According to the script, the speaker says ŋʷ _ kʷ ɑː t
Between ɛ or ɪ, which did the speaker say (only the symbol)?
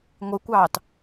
ɪ